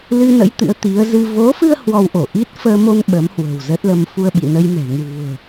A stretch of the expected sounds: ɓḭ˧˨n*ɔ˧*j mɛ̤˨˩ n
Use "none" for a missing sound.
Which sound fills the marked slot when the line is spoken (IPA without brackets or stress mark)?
ə˧